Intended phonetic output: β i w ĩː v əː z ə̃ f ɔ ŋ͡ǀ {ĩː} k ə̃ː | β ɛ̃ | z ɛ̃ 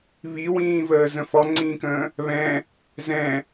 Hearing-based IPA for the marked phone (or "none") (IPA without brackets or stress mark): ĩː